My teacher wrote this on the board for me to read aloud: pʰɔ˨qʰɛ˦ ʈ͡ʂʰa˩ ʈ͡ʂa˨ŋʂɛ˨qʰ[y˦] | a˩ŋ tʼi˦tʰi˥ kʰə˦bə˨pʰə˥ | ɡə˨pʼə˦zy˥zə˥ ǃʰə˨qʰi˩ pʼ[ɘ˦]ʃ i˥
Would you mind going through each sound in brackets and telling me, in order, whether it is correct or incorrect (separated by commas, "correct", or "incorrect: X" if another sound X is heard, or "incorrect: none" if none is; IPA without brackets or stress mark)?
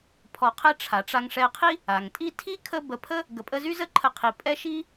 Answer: incorrect: i˦, incorrect: ɛ˦